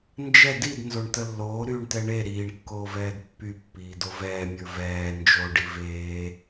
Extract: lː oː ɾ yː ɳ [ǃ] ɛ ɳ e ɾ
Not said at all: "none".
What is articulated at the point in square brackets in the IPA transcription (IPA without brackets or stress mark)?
t